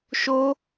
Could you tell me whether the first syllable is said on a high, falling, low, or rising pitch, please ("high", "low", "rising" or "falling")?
high